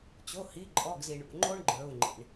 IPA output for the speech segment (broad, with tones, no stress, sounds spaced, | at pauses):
t͡ɕ o˩˧˩ h i˩˧˩ ǃʼ ɔ˩˧˩ ɡ z i˩ ɳ ṵ˩˧˩ ŋ͡ǃ o˥ ɳ ɡ͡ǃ ə˞˩˧˩ u̯ ŋ͡ǃ ḭ˩ ɳ